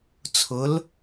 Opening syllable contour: rising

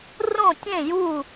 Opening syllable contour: falling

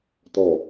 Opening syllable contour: low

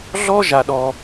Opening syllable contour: high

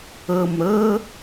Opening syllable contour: low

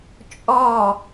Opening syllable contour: falling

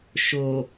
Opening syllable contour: low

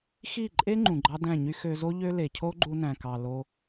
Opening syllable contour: falling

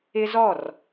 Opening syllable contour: high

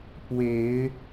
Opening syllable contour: rising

